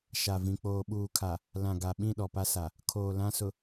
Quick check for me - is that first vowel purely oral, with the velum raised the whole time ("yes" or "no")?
yes